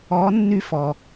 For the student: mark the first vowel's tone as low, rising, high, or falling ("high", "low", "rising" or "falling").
rising